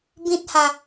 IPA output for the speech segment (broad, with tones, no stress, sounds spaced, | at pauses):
b ĩ˦ t̚ h a˧